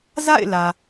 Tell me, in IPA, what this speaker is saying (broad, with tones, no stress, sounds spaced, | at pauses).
z a̰˦˨ ɪ̯ l ä˨